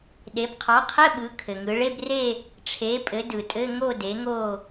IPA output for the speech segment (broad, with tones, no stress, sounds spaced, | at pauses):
ɗ e˩˧ b qʰ ɑ˩˥ qʰ ɘ˧˥˧ ɓ ɯ˩˧ kʰ ɘ˩ ŋ ɯ˩˧ ɭ e˧˥˧ b r e˥˧ | ʈ͡ʂʰ e˩˥ pʼ ɘ˩˥ d ɯ˩ tʼ ɘ˧˥˧ ŋ o˥˧ d e˩˥ ŋ o˥˧